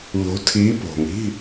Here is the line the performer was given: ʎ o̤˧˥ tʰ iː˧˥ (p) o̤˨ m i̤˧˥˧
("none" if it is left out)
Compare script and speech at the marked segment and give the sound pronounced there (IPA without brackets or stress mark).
p